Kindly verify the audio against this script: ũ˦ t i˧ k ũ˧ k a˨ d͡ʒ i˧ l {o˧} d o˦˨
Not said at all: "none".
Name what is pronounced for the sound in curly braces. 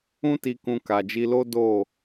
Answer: o˦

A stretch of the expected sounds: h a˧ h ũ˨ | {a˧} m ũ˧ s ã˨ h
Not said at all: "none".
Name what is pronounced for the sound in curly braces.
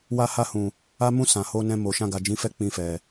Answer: a˧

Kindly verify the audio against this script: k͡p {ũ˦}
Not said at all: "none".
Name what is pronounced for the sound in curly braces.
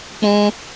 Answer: ũ˦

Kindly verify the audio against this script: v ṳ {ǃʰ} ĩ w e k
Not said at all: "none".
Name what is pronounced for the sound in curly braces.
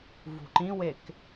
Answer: ǃ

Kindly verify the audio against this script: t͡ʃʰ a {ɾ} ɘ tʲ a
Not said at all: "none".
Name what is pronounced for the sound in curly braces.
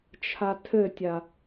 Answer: tʰ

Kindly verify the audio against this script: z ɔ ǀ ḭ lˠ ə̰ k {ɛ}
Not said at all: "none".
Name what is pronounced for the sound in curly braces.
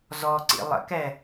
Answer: ɛ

